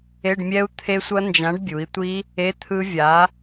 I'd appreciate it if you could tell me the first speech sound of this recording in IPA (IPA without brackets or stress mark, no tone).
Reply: e